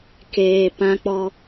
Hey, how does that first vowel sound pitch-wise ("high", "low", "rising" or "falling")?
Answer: low